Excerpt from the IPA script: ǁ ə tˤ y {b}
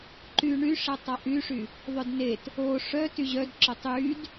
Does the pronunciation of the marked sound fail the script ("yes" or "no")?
yes